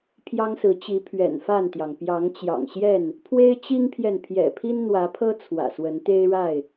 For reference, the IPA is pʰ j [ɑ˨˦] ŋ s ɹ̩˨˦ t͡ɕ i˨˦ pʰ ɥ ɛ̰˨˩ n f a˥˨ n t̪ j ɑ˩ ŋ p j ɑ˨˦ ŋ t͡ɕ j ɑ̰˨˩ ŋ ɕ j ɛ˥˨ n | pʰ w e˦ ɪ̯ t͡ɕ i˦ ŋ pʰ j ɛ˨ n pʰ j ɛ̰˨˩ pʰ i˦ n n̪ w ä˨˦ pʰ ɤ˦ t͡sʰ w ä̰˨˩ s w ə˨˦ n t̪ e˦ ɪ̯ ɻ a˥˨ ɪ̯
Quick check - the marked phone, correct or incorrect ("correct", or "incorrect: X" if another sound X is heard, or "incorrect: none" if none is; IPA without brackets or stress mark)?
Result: incorrect: ɑ˦